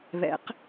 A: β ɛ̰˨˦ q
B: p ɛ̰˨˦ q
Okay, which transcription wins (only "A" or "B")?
A